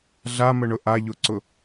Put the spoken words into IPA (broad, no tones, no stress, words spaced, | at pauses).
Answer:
ɮaməɳʊ ʔaʎʊǀʊ